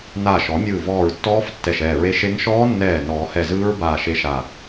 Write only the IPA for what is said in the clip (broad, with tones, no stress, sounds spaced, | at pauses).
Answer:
n aː˧˩ ʃ ɔ˨˩˦ mʲ ɯː˧˩ v ɔː˧˩ ɹ tː ɔː˦˥ f tː ɛ˧˩ ʃ ɛː˧˩ ɹ e˦˥ ʃ e˦˥ ŋ ʃ ɔː˦˥ nː ɛː˧˩ n ɔː˨˩˦ h ɛ˧˩ z ɯː˦˥ ɹ b aː˧˩ ʃ e˦˥ ʃ a˧˩